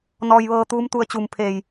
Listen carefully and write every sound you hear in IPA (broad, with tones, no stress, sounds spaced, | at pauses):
n ɔː˧ j ʋ ɤː˧ t̪ uː˧˥ m t̪ u˧ ə̯ t͡ɕ uː˧˩ m pʰ eː˧˩ j